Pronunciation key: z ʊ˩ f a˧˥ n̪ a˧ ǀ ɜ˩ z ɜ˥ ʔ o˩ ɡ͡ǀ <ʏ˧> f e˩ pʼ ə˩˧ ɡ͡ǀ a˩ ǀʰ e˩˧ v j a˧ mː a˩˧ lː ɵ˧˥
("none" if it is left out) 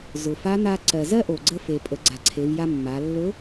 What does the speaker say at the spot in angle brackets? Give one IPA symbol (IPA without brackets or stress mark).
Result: ə˧